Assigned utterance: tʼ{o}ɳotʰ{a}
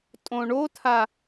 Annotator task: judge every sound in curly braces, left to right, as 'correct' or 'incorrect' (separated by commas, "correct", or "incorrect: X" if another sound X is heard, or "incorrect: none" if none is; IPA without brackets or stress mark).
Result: incorrect: õ, correct